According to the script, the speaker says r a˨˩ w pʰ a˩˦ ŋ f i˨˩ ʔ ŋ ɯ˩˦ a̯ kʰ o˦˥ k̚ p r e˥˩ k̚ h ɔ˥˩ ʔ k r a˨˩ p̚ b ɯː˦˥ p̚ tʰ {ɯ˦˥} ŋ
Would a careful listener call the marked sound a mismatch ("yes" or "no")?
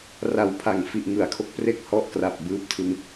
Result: no